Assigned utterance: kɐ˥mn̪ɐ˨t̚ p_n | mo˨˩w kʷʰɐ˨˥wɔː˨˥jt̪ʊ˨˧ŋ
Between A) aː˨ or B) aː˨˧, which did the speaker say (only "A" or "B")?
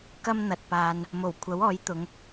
A